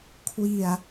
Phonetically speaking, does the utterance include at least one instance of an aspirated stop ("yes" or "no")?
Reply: yes